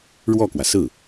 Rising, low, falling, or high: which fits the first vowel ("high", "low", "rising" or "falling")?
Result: falling